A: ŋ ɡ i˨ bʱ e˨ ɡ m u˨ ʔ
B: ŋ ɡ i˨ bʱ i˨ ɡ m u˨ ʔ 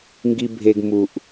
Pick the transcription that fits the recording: A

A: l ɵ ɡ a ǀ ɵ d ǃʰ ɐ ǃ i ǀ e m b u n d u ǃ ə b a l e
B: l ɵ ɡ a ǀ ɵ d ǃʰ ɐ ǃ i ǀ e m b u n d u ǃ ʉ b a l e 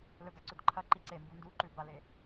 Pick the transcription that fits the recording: B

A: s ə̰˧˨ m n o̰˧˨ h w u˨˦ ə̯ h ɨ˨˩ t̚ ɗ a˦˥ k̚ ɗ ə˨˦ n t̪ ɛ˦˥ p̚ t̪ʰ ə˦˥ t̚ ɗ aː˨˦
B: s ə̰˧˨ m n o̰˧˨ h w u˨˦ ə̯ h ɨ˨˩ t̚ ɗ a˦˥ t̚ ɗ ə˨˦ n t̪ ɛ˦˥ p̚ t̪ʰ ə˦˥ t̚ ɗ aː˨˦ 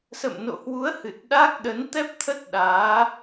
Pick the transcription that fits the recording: A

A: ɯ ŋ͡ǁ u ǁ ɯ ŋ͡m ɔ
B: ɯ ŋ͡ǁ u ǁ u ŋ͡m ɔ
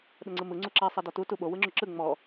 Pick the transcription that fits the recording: A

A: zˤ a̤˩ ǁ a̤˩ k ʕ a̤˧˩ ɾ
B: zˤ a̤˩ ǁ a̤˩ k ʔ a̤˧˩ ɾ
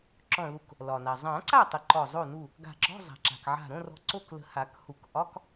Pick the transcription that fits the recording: A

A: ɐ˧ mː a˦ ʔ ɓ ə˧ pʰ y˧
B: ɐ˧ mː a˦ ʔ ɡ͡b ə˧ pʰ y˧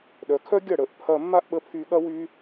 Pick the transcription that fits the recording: A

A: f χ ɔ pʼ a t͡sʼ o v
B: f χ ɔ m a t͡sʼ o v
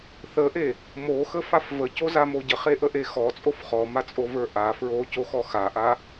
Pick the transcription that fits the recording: B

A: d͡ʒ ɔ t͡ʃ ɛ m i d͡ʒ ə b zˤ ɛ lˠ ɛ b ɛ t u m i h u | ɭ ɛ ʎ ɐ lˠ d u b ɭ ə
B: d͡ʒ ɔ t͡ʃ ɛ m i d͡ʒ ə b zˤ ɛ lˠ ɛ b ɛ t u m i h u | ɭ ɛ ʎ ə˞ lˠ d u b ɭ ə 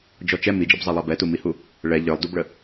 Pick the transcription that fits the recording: B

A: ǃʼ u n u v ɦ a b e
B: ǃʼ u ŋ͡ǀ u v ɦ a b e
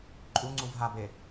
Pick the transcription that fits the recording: B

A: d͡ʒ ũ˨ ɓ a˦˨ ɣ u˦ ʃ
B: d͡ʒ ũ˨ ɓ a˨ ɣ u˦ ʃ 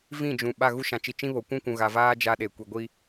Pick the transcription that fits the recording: A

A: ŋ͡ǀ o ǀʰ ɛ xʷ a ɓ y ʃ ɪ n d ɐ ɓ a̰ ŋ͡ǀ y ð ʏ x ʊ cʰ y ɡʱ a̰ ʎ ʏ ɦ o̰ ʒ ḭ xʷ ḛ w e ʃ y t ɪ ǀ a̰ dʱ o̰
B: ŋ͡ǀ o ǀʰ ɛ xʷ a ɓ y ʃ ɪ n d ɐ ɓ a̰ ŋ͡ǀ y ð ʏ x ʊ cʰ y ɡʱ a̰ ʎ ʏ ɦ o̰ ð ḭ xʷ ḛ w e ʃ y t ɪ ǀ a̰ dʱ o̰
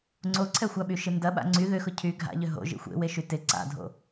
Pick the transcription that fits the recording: A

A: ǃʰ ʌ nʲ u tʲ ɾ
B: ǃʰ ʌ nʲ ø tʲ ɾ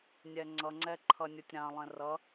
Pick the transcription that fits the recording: A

